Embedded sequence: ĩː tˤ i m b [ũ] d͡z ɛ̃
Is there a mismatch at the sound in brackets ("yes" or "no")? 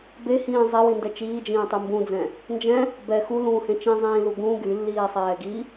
no